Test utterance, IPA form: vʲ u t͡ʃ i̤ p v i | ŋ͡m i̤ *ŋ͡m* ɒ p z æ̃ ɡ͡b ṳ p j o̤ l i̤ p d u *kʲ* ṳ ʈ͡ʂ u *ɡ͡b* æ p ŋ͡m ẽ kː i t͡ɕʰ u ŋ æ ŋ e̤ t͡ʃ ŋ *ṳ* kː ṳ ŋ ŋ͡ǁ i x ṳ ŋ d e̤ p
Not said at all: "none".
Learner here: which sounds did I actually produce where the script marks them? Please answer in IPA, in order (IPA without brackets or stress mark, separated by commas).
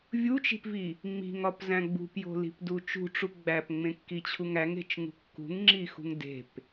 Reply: ŋ, t͡ʃ, ɡ͡b, ṳ